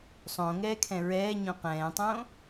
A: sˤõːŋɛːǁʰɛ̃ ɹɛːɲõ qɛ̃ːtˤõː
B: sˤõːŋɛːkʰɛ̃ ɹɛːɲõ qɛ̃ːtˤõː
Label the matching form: B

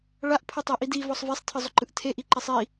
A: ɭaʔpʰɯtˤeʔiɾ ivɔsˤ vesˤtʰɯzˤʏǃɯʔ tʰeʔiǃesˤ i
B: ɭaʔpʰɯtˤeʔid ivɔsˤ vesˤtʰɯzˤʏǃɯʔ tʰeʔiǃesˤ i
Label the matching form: B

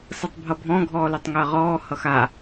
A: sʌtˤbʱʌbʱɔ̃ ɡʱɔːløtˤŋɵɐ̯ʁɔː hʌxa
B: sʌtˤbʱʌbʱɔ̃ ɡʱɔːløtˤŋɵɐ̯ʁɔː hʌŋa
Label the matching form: A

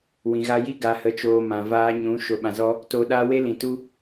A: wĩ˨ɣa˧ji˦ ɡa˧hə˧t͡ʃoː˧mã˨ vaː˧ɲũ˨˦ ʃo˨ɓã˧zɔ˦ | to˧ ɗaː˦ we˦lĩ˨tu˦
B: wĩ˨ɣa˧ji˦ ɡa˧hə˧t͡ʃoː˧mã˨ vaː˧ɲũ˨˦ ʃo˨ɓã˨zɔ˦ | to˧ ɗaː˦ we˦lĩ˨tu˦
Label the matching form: B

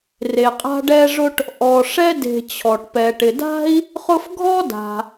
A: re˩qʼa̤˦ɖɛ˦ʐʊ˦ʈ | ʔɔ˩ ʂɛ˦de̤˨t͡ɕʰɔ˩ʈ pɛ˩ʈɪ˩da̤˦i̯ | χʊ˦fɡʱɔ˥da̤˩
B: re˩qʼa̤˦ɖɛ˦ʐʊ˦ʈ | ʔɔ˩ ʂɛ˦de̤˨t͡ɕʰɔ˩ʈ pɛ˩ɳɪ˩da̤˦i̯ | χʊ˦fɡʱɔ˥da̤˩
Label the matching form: A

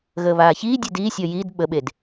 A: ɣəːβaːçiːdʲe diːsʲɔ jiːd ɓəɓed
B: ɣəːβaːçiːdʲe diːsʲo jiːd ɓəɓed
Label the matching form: A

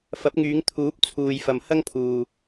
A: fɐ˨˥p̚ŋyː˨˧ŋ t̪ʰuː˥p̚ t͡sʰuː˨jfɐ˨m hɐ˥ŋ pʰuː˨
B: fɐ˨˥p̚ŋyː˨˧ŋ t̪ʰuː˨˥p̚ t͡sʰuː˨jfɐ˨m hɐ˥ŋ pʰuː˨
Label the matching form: B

